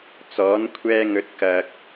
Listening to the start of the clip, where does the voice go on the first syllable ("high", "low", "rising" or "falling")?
rising